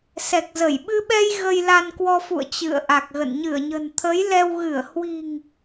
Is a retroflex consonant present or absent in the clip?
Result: absent